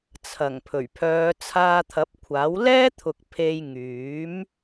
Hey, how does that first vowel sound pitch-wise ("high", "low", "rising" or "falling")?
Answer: low